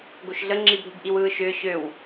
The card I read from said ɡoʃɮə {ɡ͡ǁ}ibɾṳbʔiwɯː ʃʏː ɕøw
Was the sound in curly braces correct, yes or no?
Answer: no